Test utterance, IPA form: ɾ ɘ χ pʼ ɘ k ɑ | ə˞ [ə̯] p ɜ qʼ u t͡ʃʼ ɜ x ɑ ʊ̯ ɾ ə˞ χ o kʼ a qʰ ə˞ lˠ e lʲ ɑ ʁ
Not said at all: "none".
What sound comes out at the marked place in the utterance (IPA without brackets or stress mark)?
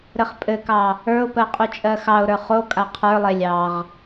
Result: ʊ̯